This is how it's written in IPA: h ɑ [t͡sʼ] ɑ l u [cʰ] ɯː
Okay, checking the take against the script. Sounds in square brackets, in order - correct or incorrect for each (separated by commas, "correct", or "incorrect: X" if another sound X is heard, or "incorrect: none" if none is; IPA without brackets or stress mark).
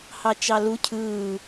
incorrect: t͡ʃ, correct